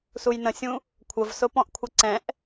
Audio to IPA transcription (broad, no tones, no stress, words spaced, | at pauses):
sujnə̃sʲũ | kʷʰəvsʊ pɔ̃ʔkʷʰəǀɛ̃ʔ